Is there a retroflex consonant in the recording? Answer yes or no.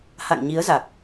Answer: no